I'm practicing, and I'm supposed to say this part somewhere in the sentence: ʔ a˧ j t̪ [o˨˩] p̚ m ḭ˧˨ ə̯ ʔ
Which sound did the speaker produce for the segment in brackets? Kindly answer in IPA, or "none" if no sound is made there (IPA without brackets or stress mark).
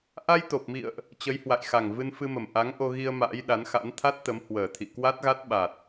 o˨˩